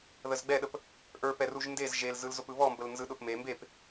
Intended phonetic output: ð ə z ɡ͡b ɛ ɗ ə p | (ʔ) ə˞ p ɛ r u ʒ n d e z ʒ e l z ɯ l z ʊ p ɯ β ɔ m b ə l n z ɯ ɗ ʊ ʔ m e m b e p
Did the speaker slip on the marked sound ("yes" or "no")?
no